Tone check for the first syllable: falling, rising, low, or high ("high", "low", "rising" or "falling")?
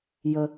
low